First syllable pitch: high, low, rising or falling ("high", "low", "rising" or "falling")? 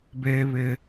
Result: high